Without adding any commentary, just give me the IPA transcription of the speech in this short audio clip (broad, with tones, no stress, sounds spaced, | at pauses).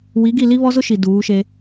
w i˨˦ ɡ i˦˨ l i˦ β ɔ˦ z ʊ˦ ʃ i˨ d uː˨˦ ʃ e˦